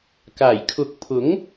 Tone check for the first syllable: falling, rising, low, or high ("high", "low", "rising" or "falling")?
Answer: low